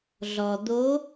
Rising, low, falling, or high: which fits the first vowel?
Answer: low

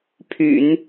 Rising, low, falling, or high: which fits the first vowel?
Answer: low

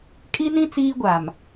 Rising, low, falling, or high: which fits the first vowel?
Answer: high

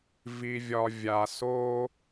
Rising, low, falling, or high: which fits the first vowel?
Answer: low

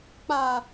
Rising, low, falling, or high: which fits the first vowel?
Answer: low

